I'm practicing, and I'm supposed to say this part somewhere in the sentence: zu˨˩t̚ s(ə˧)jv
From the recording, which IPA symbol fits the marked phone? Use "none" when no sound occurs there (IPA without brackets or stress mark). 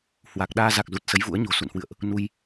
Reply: ə˨˦